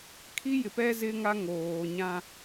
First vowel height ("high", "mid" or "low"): high